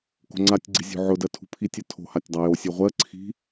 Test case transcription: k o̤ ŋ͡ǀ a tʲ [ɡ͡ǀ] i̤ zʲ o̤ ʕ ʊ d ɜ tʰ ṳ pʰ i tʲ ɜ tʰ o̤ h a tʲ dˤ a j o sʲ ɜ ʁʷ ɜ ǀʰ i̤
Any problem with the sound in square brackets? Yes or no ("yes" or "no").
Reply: no